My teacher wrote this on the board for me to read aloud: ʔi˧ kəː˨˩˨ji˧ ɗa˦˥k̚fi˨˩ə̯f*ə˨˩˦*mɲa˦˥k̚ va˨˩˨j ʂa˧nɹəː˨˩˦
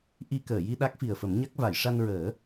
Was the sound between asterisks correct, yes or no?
yes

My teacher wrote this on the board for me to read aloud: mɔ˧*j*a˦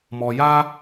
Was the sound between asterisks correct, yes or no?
yes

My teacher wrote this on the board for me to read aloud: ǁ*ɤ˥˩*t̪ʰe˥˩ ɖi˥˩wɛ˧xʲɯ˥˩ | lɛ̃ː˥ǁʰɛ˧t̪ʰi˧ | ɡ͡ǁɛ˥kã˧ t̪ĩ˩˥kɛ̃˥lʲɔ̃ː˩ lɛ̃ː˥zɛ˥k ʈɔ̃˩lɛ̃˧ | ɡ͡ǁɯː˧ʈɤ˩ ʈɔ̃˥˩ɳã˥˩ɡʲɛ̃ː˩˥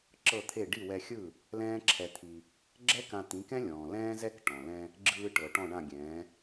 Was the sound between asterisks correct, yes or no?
yes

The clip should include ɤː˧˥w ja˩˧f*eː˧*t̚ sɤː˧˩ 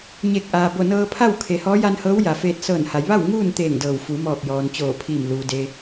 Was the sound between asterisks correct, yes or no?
yes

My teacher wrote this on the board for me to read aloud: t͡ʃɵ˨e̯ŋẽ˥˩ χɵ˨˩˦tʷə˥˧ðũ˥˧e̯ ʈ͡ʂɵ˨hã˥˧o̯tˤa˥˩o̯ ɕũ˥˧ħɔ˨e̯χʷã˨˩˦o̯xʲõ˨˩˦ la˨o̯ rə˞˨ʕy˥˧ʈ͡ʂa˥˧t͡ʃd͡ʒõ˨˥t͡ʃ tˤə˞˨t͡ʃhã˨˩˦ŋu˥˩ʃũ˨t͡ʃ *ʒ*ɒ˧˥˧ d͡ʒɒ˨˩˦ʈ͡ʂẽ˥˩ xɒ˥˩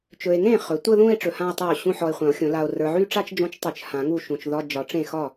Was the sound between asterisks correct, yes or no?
no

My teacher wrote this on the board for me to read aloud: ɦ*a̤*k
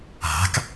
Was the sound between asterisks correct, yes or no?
yes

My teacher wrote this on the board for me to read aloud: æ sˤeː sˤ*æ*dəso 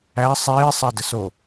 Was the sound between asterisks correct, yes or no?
no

